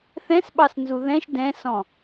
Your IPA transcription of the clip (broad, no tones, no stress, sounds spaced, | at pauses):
θ ɛ̃ s ɓ ɑ s n z u ð ɛ̃ ʃ d ɛ̃ s ɔ̃